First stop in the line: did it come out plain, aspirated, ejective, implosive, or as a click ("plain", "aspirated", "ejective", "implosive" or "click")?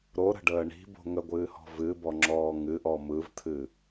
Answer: plain